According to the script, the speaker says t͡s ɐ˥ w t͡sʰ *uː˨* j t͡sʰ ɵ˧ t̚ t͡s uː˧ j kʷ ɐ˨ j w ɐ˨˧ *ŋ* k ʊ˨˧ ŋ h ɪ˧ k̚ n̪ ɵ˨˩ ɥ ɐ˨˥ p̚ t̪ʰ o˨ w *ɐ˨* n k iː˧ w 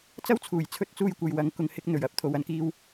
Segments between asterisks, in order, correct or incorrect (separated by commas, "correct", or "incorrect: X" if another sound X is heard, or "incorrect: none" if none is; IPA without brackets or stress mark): incorrect: uː˨˩, correct, correct